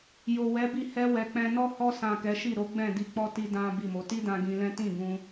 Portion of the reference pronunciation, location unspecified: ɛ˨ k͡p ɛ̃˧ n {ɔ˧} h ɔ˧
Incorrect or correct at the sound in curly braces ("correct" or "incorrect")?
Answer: incorrect